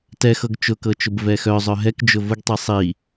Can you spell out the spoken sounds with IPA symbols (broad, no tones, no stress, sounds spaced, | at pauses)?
t ɛ x ɤ ɡ t͡ʃ ʊ k ɤ t͡ʃ ʊ b v ɛ x œ zˤ œ ɦ ɛ k d͡ʒ ʊ v ʊ ɡ tˤ i sˤ i